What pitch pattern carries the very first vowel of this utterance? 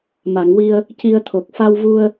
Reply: low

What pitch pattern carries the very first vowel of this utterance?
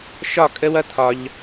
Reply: falling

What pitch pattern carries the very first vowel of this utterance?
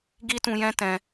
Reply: high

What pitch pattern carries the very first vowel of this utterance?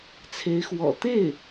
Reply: rising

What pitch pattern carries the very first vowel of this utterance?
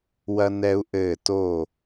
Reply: high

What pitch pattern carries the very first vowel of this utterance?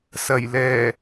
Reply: low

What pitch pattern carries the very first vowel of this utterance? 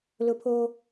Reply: high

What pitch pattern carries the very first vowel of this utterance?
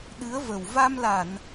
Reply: rising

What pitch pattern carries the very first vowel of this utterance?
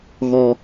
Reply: high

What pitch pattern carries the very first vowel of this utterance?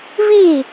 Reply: falling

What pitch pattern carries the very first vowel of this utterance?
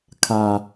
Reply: low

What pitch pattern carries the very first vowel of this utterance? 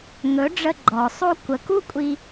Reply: rising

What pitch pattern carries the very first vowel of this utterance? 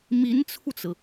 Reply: rising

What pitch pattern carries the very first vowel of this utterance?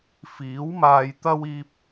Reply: rising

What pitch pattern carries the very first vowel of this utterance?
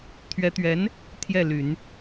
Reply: rising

